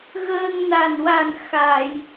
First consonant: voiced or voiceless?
voiced